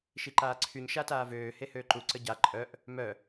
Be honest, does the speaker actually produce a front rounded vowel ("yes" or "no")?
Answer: yes